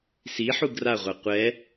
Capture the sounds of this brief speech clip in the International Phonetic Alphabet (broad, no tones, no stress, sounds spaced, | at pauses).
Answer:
s i ħ u ɡ r a ʁʷ a qʷ ɛ